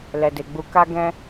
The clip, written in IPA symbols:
l ɛ˨ d e˨ ɡ͡b u˧ k a˦ ɡ ɛ̃˦

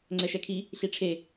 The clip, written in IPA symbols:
ŋ͡ǀ ɛ ʃ ɛ kʰ i | ɬ i ʈ͡ʂʰ e

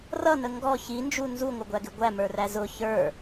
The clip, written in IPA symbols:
r ʌ n ə ŋ ɡ ɔ ç i n d͡ʒ u n z u ŋʷ ɪ ɡʷ æ ɡ ɪ ɡʷ æ m ə˞ r æ z ʊ ç ə˞

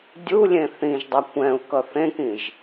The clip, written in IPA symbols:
dʲ u lʲ ẽ θ ĩ ʒ dˤ ʌ kʷ ɛ̃ u̯ k ʌ θ ẽ k ĩ ʒ

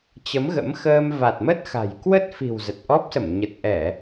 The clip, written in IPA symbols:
t͡ɕ ə˨˦ m ɣ ə̰˧˥ m x əː˧ m v a˨˩ t̚ m ə˦˥ t̚ x a̤˨˩ j k w ə˦˥ t̚ f i̤˨˩ w z ə˨˩ t̚ ʔ ɔ˦˥ p̚ s ə˧˩ m ɲ ə˨˩ t̚ ʔ ɛ˧˩˨

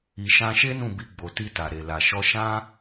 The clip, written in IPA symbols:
i˨ ʃ ã˧ ʃ e˦ n ũ˦˨ b i˧ ɡ͡b o˨ t i˧ t a˨ ɾ e˨ l a˨ ʃ ɔ˧ ʃ ã˦

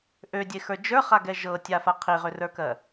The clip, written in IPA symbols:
ʔ ø dʲ e x ə˞ d͡ʒ ə˞ χ a ɡ ɛ ʒ ɤ tʲ a f a qʰ i ʁ ø r ə˞ k ɜ

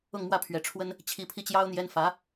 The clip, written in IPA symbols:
ʊ˥˧ ŋ m w ä˥˩ pʰ ɥ ɛ˧˥ ʈ͡ʂʰ w ə˥ n | t͡ɕʰ i˧˥ pʰ i˥˩ t͡ɕ j ɑ˥ ʊ̯ n̪ j ɛ˥ n f ä˧˥

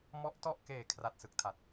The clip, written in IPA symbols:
m ɔ˦˥ ʔ t ɔ˥˩ ʔ k eː˨˩ kʰ r a˨˩ t̚ s ɯ˥˩ k̚ tʰ a˨˩ t̚

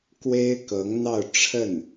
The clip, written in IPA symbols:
k w e˥ ɪ̯ k ɤ˧˥ ŋ n̪ ɑ˥˧ ʊ̯ ʈ͡ʂʰ ə˥˩ n

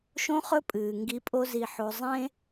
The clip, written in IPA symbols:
ʃ õ˦ χ ɵ˦ pʼ ɨː˨ ŋ ɡ i˧ pʼ o˦ z i˧ ħ o˧ zˤ ẽ˦

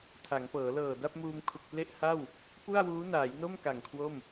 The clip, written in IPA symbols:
tʰ a˩˦ ŋ p ɤː˩˦ l ɤː˨˩ d a˥˩ p̚ m uː˧ m kʰ u˨˩ k̚ p l e˥˩ ʔ h a˥˩ w | p u˥˩ a̯ w uː˦˥ n aː˩˦ j n o˥˩ m k a˨˩ ŋ kʰ w o˥˩ m

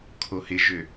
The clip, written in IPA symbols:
kʰ o h ɪ ʒ ø

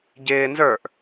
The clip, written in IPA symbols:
ɟ ɪː n z ə˞ ʔ

